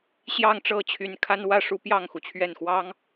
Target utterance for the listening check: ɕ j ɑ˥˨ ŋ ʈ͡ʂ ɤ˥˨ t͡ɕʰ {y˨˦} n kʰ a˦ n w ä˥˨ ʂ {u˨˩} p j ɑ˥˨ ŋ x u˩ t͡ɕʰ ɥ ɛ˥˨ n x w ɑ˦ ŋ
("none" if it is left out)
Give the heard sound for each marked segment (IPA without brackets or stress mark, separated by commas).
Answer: y˨˦, u˦